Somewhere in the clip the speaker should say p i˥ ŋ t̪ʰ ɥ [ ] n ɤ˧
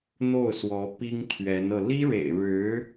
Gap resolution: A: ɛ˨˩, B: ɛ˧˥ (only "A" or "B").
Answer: B